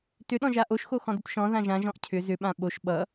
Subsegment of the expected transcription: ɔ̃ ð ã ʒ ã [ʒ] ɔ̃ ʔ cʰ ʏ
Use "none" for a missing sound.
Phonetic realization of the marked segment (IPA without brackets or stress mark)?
ʒ